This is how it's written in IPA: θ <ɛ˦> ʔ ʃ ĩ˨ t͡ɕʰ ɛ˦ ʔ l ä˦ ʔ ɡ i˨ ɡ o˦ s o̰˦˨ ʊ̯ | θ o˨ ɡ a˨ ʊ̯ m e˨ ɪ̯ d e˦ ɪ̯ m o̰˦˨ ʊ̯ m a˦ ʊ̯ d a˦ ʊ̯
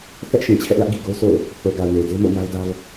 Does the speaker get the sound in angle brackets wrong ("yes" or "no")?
no